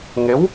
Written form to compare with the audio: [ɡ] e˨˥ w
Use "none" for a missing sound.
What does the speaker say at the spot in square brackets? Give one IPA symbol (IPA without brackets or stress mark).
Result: ŋ